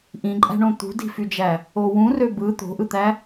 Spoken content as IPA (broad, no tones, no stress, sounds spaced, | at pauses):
ʔ ĩ ǃʼ æ̤ ɳ õ t̪ ṳ d i̤ f y d͡ʒ æ | o w ũ r ø b ɯ t̪ o̤ ʔ ɯ t̪ æ